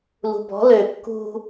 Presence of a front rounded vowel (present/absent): present